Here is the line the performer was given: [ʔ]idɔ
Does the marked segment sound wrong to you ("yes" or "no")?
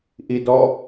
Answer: no